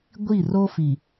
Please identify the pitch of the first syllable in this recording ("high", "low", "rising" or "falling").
falling